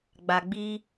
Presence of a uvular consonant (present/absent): absent